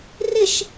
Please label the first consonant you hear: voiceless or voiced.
voiced